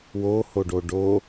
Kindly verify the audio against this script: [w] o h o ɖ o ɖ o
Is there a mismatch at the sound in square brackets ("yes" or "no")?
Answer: no